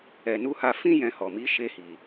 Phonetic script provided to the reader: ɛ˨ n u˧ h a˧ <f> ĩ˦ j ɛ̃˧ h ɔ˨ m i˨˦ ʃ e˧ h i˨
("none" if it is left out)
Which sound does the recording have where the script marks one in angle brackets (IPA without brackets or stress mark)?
f